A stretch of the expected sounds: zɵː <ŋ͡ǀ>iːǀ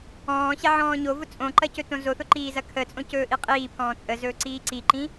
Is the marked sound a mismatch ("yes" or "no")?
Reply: yes